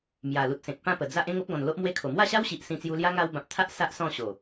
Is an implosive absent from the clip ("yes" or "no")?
yes